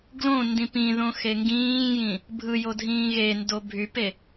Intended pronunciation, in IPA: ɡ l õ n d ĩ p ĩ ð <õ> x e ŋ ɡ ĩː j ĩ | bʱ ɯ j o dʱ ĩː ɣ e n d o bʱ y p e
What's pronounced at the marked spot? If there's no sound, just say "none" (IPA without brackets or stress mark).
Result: õ